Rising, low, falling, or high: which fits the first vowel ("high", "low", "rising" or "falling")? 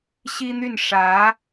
high